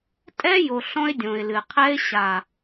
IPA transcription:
tʼ ɛ˦ j o˨ ɬ ɔ̃˧ ɪ̯ dʲ õ˨ ɪ̯ l ɨ˨ qʰ ɛ˦ ɪ̯ ɕ a˨

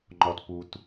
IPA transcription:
ŋ͡ǃ ɔ t p u t

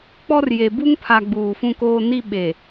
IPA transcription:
k͡p ɔ˦ r j e˨ b u˦ ŋ pʰ a˨ ɡ͡b uː˨ f ũ˦ k oː˦ n i˦ ɓ e˨

